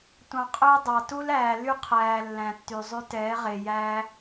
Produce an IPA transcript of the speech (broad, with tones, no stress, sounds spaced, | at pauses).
tʷ ɑ̃˨ qʼ ɵ˦ j dˤ ɑ˨ t u˦ l æː˨ l y˦ qʰ æː˨ lː æ̃˨ tː y˨ zˤ y˦ t ɛː˨˦ ʁ e˨ j æː˦